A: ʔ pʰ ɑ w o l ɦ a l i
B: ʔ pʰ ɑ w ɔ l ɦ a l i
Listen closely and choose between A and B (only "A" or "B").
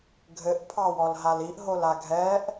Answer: B